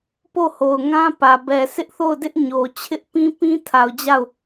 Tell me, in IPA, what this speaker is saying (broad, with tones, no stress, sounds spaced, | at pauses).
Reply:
p o˦˨ h o˨ ʊ̯ ŋ ã˦ p ä˨ b ɛ˨ sʰ ɪ˦ ʔ θ o˦˨ ʊ̯ d ɪ˦ ʔ ɲ o˨ t͡ɕʰ ɪ˦ ʔ p ĩ˦ p ĩ˦ tʰ a˨ ʊ̯ d͡ʑ a˦˨ ʊ̯